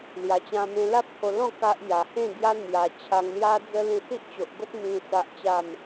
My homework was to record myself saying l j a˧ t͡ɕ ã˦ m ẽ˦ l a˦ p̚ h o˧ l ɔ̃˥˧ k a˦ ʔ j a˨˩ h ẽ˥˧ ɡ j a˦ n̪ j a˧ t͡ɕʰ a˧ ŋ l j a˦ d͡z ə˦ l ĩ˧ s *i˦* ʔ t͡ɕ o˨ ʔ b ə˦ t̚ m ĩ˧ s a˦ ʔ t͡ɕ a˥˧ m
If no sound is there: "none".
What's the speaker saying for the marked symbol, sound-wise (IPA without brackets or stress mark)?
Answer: i˦